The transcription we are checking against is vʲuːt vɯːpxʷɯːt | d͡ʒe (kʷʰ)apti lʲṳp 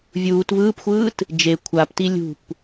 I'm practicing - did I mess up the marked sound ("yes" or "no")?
no